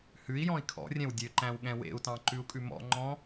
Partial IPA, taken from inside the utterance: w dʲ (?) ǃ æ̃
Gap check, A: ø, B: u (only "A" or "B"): A